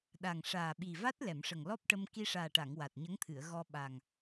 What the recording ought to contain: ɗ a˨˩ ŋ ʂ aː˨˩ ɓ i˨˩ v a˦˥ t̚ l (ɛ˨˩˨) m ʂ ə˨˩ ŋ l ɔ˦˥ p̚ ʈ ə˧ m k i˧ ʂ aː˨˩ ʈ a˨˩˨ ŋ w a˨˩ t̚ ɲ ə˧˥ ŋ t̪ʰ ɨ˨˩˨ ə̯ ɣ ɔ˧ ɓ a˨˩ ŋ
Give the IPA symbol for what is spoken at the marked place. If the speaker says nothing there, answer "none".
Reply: ɛ˨˩˨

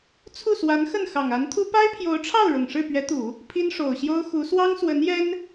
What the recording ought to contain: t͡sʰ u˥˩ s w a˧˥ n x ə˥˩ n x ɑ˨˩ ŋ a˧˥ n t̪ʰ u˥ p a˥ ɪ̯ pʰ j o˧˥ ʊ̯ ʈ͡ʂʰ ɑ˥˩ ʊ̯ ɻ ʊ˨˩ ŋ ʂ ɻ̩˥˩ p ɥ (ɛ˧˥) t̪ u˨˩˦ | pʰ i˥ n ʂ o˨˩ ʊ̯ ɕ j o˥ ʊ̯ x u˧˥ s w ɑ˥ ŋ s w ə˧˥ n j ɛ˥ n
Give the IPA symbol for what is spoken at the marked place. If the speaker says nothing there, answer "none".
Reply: ɛ˧˥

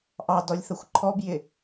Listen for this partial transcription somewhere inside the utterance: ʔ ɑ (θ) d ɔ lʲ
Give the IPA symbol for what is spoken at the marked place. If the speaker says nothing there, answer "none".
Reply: none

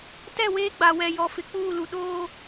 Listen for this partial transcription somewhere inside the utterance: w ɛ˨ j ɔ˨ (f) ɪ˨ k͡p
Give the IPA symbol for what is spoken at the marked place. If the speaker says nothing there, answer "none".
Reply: f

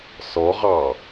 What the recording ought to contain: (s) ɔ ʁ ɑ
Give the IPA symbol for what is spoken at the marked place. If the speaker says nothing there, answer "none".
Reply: s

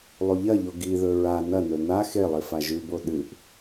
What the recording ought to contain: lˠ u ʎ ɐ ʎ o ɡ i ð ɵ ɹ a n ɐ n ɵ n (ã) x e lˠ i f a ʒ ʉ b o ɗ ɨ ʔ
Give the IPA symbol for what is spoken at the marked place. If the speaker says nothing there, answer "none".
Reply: a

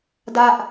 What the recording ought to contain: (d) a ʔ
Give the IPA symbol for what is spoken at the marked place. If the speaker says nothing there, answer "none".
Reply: d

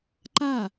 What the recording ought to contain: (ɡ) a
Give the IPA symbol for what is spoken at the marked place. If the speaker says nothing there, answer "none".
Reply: ǃ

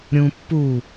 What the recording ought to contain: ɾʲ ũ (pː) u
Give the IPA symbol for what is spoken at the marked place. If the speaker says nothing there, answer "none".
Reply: pː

